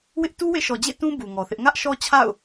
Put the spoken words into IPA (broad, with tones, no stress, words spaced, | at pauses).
wɪ˦ʔ tu˦wḛ˦˨ʃɔ˨d͡ʑḛ˦˨ tũ˦ bu˨ŋɔ˨θɪ˦ʔ ŋä˦ʔʃɔ˦ t͡ɕʰa̰˦˨ʊ̯